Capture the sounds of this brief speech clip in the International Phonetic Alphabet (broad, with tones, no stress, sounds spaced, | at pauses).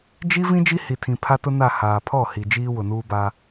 d͡ʒ i˦ v ĩ˦ d͡ʒ i˦ h i˨ tʰ ĩ˨ pʰ a˦ t ʊ˦ n a˦˨ h aː˨ pʰ ɔ˦˨ h i˨ d͡ʒ iː˦ w ʊ˨ n uː˦ b a˦